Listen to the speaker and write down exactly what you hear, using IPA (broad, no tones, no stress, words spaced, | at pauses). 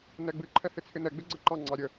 nɛɡ͡bɨǃʰɛ hɪt͡sʰɪnɛɡ͡bɪ ɡ͡ǀəǃɑŋ͡ǀɑ ɾʲə